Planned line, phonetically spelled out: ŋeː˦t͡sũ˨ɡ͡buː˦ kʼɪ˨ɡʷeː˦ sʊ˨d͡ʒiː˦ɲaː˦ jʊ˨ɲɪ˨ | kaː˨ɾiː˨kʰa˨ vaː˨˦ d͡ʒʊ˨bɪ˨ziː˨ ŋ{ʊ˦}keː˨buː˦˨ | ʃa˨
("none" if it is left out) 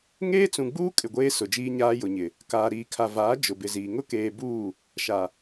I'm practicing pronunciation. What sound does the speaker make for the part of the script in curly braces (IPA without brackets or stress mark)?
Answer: ʊ˦